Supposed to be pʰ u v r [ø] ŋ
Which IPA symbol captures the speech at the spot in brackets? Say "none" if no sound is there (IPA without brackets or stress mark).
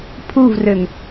ø